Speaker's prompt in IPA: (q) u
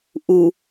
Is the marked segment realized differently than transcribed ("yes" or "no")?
yes